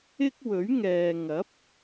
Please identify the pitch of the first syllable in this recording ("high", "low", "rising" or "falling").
high